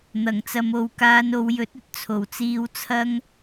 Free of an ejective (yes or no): yes